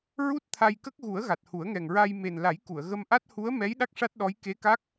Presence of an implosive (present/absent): present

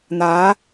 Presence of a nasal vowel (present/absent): absent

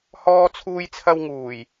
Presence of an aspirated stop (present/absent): present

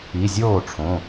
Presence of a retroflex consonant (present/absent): present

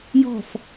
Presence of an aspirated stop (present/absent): absent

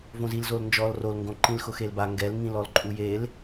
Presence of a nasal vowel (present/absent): present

